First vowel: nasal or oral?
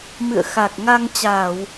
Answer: oral